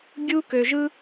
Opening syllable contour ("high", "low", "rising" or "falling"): high